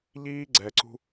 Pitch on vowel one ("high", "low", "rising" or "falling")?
high